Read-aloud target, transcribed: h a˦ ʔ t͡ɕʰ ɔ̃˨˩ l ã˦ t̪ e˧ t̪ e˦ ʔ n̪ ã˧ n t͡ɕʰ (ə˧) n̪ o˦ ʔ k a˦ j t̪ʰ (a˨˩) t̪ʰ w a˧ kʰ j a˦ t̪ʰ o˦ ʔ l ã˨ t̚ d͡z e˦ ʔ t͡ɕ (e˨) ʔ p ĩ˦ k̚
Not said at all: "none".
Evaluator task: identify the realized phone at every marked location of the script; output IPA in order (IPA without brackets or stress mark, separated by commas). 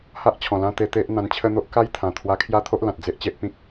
ə˦, ã˨˩, e˦